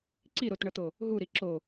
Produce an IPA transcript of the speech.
ǀ i ɾ o t ɳ ʌ t̪ o | ɦ u ɾ i ǁ o

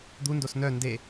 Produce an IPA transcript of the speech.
d̪ u n d o s n œ n d e

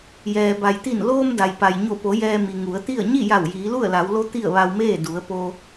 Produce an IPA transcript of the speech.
j ɛː˩ b a˩ j t̪ i˧˩ n l oː˧ m d a˩ j p a˩ j ɲ o˧˩ p o˩˧ j ɛː˧ m i˩ ŋ u˩˧ ə̯ t̪ i˥˨ ə̯ ɲ i˥˨ j a˧˩ w j iː˩˧ l u˥˨ ə̯ l a˩˧ w l o˧˥ t̪ i˥˨ ə̯ ʋ a˧ w m eː˥˨ d u˩˧ ə̯ p o˧

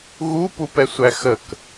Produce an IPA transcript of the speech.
ɣ u p u p ɛ sʷ æ x ə k

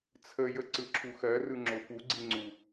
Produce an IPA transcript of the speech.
t͡sʰ ə j ə ǀ ɯ ǁʰ u x ɜ r ɯ ŋ͡ǁ o p u ɡ͡ǀ i ŋ͡ǀ u

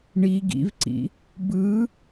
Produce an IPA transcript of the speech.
ɳ i ɡ ḭ v ǀ ḭ | b ɯ

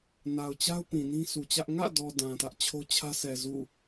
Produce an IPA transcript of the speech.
n a˨ ʊ̯ t͡ɕ a˦ ʊ̯ p ĩ˨ n ĩ˦ s u˨ t͡ɕ ä˦ ʔ ŋ ä̰˦˨ d ɔ˨ d ã˨ t ä˦ ʔ t͡ɕʰ o˦ t͡ɕʰ ä˦ s ɛ˨ z ṵ˦˨

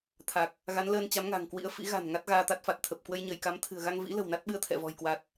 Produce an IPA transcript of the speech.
t̪ʰ a˨˩ k̚ | ɣ a˨˦ n l əː˧ n t͡ɕ a˨˦ m ŋ a̤˨˩ ŋ k w ḭ˧˥ ə̯ f ḭ˧˥ ɣ a̤˨˩ n ŋ a˦˥ t̚ ɣ aː˧ t̪ a˦˥ t̚ f a˨˩ t̚ t̪ʰ ə˨˩ p̚ k w ə˧ j ɲ əː˧˩ j k a˨˦ m t̪ʰ ɨ̤˨˩ ə̯ ɣ a˧ ŋ v ḭ˧˥ l ə̤˨˩ w n a˦˥ t̚ ɓ ɨ˧ ə̯ t̪ʰ ɛ̰˧˨ v ɔ̤˨˩ j k w a˨˩ t̚

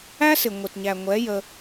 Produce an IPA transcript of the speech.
æ˦ s ɪ˨ ŋʷ ɪ˨ t ɲ æ˨ ŋʷ ɛ˨˦ j ə˧

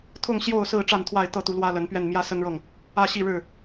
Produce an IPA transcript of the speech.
t̪ʰ ʊ˥˨ ŋ ɕ j o˥˨ ʊ̯ s ɹ̩˥˨ ʈ͡ʂ a˥˨ n t̪ʰ w a˥˨ ɪ̯ t̪ ɤ˥˨ t̪ u˨˦ l w ä˦ l ə˨˦ n p ɥ ɛ˥˨ n m j ä˦ s ə˦ n ɻ ɤ˥˨ ŋ | ä˥˨ ɕ i˥˨ ɻ ɻ̩˥˨

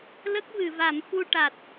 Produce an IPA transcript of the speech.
l ə˦˥ k̚ v ɨ˨˩˨ v a˨˩˦ m f u˧ ʈ a˨˩ t̚

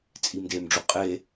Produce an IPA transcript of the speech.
t͡sʼ i m d e m ɖ͡ʐ u qʼ e

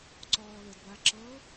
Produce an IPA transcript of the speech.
ǀ ɔː l ɘ d b a ǁ ɤ

